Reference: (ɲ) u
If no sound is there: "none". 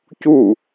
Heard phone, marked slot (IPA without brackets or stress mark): c